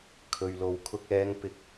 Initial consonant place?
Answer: velar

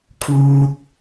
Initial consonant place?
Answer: velar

